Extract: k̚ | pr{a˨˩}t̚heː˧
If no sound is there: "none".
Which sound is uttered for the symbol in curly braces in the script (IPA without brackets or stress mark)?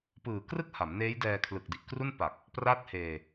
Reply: a˥˩